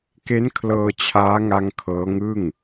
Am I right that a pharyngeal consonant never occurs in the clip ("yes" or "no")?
yes